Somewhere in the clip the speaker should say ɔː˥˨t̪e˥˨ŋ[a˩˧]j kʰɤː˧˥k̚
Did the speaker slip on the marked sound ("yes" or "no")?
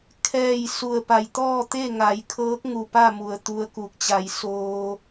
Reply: no